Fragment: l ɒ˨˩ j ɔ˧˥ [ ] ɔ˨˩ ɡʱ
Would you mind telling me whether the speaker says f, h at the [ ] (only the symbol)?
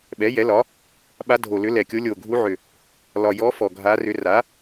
f